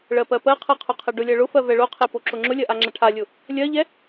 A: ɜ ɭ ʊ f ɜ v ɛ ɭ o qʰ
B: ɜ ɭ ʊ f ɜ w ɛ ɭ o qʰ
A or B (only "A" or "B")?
A